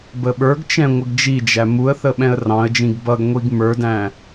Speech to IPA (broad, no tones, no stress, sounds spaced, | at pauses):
b ə ɓ ə˞ ɡ t͡ʃ ɛ̃ ŋʷ ə ɡ d͡ʒ i d͡ʒ æ m u ə̯ θ ə ɓ ɛ̃ ə̯ r ɑ̃ ə̯ d͡ʒ ĩ ɡ b ʌ ɡ ŋʷ i ɡ m ə˞ d æ̃